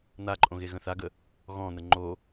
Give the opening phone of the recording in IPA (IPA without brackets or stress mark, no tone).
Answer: n̪